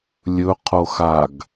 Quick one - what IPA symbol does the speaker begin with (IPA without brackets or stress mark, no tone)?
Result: lʲ